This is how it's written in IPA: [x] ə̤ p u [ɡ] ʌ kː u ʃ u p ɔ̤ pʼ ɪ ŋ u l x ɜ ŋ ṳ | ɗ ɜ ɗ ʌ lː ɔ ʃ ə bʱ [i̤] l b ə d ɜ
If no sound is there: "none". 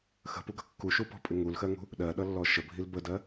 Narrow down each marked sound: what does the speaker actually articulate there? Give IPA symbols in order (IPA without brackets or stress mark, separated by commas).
x, ɡ, i